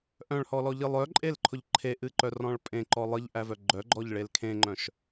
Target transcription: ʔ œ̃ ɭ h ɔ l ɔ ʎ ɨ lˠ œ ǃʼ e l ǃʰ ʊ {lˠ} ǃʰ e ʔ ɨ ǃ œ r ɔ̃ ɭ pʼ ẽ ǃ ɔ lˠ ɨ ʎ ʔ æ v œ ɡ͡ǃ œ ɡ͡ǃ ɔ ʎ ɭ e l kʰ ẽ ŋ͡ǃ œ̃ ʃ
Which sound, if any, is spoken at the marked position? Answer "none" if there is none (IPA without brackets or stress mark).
ʎ